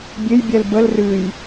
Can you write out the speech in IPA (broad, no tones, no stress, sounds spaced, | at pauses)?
bʲ e j bʲ ɛ l b ə l r ɨ j